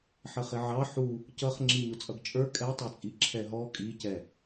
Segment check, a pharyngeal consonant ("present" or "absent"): present